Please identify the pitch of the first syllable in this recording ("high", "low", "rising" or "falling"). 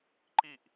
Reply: falling